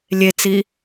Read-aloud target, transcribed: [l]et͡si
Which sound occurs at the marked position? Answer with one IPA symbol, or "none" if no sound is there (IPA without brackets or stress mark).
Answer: lʲ